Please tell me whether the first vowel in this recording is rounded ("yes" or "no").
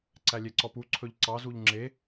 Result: no